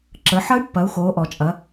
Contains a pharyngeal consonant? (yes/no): yes